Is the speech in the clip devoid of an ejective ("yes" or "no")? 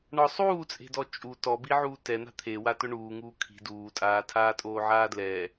no